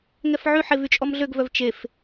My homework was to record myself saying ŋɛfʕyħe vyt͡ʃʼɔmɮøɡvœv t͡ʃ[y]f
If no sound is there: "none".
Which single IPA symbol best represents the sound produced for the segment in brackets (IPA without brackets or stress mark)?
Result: e